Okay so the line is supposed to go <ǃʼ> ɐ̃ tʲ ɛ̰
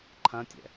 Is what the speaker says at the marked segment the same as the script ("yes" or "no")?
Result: no